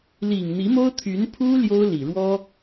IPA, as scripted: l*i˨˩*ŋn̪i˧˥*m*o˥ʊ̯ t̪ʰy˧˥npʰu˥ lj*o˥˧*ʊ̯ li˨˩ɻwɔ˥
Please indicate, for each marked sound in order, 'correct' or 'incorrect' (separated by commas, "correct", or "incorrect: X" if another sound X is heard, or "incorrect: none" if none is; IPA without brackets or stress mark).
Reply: correct, correct, incorrect: o˥